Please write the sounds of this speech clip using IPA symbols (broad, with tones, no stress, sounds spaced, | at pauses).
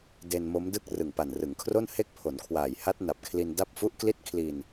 d e˧ n m o˦˥ m d ɯ˥˩ k̚ r ɯ˨˩ ŋ p a˨˩ n r ɯ˩˦ ŋ kʰ r o˥˩ n h e˦˥ k̚ pʰ o˩˦ n kʰ w aː˨˩ j h a˦˥ t̚ n a˨˩ p̚ kʰ l i˧ n d a˥˩ p̚ f u˦˥ ʔ k l i˥˩ t̚ kʰ l i˧ n